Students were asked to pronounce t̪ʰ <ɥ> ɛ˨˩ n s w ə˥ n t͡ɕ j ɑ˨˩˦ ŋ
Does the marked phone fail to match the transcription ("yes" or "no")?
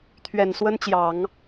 no